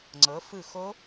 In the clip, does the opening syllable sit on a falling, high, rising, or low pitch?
rising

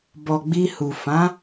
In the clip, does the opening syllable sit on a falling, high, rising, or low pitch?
low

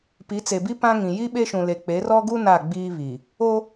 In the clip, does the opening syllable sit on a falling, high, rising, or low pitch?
rising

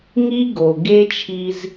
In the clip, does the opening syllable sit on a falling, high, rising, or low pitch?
high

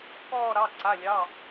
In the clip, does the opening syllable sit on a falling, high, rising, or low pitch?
falling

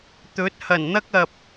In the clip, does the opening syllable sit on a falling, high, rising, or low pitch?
rising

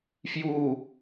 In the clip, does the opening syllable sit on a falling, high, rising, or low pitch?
falling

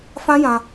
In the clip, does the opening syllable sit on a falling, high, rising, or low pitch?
high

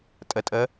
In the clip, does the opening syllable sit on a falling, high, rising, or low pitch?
low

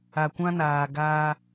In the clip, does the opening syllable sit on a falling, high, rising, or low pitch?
low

